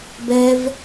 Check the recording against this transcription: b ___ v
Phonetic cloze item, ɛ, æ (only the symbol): ɛ